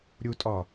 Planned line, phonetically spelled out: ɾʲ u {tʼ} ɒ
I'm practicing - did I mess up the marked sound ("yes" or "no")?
no